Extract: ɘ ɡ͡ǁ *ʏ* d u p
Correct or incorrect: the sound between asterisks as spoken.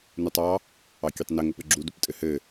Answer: incorrect: u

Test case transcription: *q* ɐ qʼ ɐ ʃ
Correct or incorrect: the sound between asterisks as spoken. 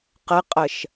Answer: correct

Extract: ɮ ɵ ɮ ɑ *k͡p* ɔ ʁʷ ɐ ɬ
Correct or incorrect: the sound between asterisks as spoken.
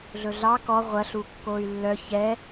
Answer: incorrect: k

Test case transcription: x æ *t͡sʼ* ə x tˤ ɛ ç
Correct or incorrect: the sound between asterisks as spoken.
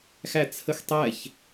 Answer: incorrect: t͡sʰ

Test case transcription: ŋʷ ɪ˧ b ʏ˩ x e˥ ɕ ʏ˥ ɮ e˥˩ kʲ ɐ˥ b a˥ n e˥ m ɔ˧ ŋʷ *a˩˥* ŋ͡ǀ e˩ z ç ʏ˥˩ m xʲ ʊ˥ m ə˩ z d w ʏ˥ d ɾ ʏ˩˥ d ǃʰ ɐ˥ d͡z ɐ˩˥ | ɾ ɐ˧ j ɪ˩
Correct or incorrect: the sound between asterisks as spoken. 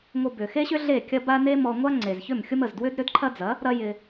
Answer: incorrect: a˥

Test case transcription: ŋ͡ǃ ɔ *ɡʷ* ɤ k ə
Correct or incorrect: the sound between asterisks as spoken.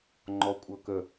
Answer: incorrect: kʷʼ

